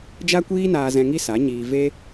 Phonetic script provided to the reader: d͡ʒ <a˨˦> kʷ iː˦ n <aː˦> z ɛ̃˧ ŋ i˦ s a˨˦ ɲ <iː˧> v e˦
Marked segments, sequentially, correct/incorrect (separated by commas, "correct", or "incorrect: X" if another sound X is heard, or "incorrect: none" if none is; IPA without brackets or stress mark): incorrect: a˦, incorrect: aː˧, correct